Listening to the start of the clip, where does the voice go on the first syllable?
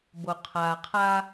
low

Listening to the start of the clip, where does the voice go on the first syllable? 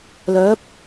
rising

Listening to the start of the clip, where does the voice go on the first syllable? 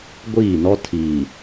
falling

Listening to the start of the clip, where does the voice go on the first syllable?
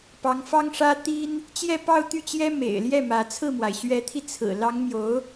rising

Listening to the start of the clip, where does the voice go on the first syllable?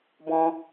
high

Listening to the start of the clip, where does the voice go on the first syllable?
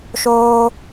high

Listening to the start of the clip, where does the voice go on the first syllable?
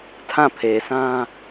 falling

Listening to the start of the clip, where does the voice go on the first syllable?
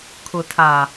low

